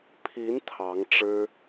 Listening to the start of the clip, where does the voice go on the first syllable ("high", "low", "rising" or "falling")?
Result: rising